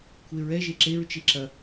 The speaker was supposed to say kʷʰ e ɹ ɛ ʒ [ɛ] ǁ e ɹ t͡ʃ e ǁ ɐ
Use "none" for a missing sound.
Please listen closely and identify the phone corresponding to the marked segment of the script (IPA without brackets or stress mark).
e